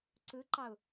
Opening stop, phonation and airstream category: click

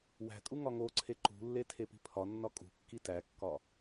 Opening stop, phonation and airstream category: ejective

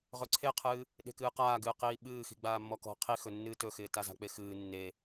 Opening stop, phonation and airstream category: click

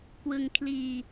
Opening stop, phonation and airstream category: plain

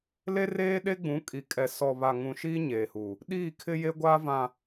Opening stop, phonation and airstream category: implosive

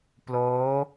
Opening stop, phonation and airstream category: plain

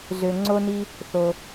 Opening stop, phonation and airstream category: click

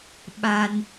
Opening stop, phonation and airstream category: implosive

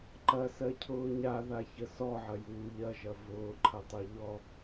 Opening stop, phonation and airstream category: click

